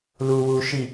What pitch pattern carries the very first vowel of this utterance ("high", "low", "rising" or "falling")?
low